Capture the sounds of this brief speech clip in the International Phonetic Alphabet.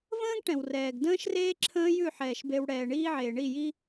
v ə̃ː˦ ɡ ʈ ɛ̃˨ w r ɛː˨ ɡ d ə̃ː˦ ʃ r eː˦ ǁʰ ə̃ː˦ j ʉ˦˨ ħ ɛː˨ ʃ b e˨ w ɽ ɛː˨ ɳ iː˦ ʕ eː˨ ɳ i˦˨ j i˦

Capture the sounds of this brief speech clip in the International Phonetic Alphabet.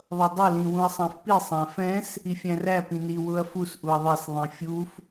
ðˤ ʌ dˤ ʌ l ĩ w ũ ɐ̯ sˤ æ̃ f p i sˤ æ̃ f ɛ̃ s | i fʲ æ̃ r æ p ĩ n i w ʊ ɐ̯ f u s ʔ u ɐ̯ ðˤ ɛ s ðˤ ĩ fʲ u f

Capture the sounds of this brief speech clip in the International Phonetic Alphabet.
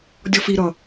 dʲ ɔ f i ɾ ʌ

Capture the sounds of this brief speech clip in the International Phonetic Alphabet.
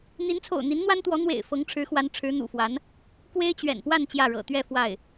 n̪ i˧˥ n t͡sʰ o̰˨˩ ʊ̯ n̪ i˧˥ n n̪ w a˥ n t̪ w ɔ˧˥ n̪ w ḛ˨˩ ɪ̯ f ɤ˧˥ ŋ ʈ͡ʂʰ ɻ̩˧˥ x w a˧˥ n ʈ͡ʂʰ ɻ̩˧˥ n̪ ṵ˨˩ f w a˧˥ n | k w e˥ ɪ̯ t͡ɕ ɥ ɛ̰˨˩ n p w a˥˧ n t͡ɕ j ä˥˩ ɻ ɤ̰˨˩ t̪ ɥ ɛ˥˧ f w a˥˩ ɪ̯

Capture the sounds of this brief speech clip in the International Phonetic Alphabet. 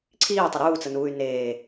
ǀʰ iː tˤ ə ɾ uː t͡s ə n uː y̯ n eː

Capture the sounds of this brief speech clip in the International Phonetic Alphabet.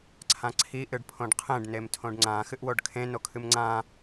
ǀʰ ã ǀʰ i ʔ ɨ ɖ pʰ õ ɖ qʰ ẽ ɖ n e m tʰ õ ɖ ŋ͡ǀ ã x ɨ ʔ w o ɖ kʰ ẽ n o kʰ ɨ m ŋ͡ǀ ã

